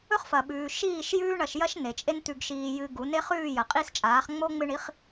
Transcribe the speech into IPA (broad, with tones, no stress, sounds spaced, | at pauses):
ɵ˦ χ f ɐ˨ ɓ ʉː˨ ʃ iː˦˨ ʃ j ʉː˦ ɳ ɐ˧ ʃ j ɐ˦ ʃ n e˨ t͡ʃʼ e˦ n t̪ ʉ˧ ɡ ʃ iː˧ j ɨ˧ ɡ u˨˦ n e˦ χ ʉː˦˨ j ɐ˨ qʼ i˦˨ s t͡ʃʼ aː˨˦ χ ŋ͡m o˦ ŋ͡m ɨ˧ ɳ i˨˦ χ